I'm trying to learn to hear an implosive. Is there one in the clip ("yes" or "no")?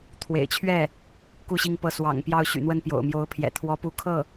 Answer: no